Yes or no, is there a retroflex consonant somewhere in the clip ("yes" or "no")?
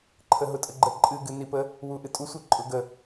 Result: no